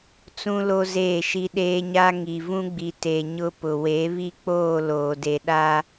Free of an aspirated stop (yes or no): yes